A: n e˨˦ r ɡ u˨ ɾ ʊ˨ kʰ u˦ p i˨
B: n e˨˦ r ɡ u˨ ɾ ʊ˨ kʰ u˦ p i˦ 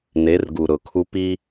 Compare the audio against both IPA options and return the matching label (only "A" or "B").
B